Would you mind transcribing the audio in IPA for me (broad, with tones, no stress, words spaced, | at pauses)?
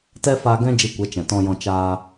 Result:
tɛ˦faː˧ ɡɛ̃˦ d͡ʒi˧kʷɛ˨˦ t͡ʃɛ̃˨tɔ̃˧jɔ̃˧ t͡ʃaː˧